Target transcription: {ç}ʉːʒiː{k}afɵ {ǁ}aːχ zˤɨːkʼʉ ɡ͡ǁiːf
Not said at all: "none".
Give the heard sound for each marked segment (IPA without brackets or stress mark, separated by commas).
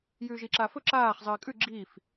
j, ǁ, ǁ